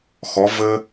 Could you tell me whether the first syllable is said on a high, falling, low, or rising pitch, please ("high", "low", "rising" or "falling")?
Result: rising